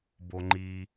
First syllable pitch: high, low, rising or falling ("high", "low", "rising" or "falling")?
low